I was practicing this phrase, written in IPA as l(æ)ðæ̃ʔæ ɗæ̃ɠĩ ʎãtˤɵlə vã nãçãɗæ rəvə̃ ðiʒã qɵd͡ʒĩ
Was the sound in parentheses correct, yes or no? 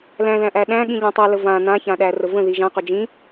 no